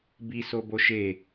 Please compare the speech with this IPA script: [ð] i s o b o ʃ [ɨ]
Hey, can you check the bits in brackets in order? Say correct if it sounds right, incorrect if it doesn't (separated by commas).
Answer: incorrect, incorrect